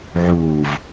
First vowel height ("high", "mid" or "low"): high